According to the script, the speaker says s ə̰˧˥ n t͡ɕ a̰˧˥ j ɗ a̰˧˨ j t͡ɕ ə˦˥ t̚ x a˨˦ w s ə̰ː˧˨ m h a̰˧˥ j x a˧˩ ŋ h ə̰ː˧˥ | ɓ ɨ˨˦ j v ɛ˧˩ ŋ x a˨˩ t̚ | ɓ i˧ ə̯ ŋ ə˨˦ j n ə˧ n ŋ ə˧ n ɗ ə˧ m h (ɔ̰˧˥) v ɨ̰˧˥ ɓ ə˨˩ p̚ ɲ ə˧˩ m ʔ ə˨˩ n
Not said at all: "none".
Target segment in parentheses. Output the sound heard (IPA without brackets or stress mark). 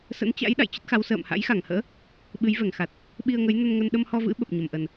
ɔ˧